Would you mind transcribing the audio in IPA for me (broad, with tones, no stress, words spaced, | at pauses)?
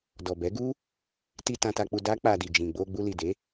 dɔ˨bɛ˨˦ɡu˦ | ti˧ tã˧ta˧k͡pu˧ da˦k͡pa˧ di˨d͡ʒĩ˨ ɡ͡bo˧ɡ͡bu˧li˨de˨˦